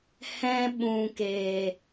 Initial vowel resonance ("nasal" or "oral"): nasal